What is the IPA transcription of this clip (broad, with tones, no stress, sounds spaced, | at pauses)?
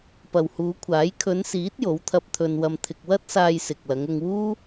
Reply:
p ɐ˨ w h uː˨˧ kʷʰ aː˨˥ j kʰ ɵ˨˧ n s iː˨˥ t̚ j o˨˥ w t̪ʰ ɐ˧ p̚ t̪ʰ ɵ˧ n w ɐ˧ m t̪ʰ ɪ˧ k̚ w ɐ˥ t̚ s aː˧ j s ɪ˨ k̚ l ɐ˨˧ ŋ ʊ˧ ŋ w uː˥